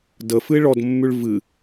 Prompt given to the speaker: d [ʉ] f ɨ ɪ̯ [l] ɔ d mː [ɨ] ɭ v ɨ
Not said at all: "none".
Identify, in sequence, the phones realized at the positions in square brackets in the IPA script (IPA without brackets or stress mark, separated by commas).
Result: ə, ɭ, ʉ